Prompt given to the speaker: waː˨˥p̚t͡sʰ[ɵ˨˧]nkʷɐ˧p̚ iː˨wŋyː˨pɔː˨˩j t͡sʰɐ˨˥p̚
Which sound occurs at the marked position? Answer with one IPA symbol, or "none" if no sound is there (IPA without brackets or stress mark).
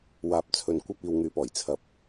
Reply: ɵ˨